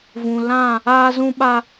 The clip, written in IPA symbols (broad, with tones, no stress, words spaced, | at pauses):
vũ˨lã˦˨ | aː˦zũ˦ɓa˦